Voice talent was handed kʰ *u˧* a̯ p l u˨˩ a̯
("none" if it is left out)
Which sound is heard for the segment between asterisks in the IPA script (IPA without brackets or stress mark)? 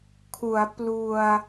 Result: u˩˦